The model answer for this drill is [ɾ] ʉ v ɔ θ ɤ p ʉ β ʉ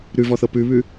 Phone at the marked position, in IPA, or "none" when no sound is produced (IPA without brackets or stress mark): ɾ